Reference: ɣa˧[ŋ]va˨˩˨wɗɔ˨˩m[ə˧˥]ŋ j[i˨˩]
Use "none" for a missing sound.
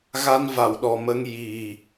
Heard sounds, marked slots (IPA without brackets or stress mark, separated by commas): n, ə˧, i˨˩